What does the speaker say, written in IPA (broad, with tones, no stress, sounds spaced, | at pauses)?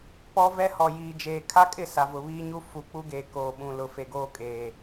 p ɔ˦ v ɛ˦ h ɔ˨ j iː˨ d͡ʒ eː˨ kʰ a˦ kʼ ɪ˦˨ s a˨ v ʊ˨ β iː˦ ɲ u˦ f u˨˦ k͡p u˦ ɡ eː˨ k oː˨ ɓ ũ˨ l ʊ˨ f e˨ ɡ oː˦ kʼ eː˨